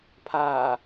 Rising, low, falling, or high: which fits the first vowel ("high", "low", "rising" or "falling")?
low